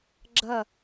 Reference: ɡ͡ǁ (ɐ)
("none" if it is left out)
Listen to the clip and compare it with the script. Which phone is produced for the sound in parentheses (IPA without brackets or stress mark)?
ɐ